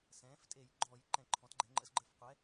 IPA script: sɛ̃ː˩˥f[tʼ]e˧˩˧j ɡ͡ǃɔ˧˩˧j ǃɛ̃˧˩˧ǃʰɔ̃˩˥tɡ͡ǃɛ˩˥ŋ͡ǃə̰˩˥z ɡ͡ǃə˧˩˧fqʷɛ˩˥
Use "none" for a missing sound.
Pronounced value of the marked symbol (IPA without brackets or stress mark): tʼ